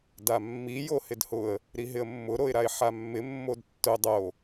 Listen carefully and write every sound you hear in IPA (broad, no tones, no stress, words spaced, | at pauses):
damːi johɪdhʊə̯ | ɾiɦɪə̯mːʊ ɾoɪ̯ɾaɪ̯ħamːɪ mːodtːʊ dˤo